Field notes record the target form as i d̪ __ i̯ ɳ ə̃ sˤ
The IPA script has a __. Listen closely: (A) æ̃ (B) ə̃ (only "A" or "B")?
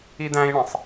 A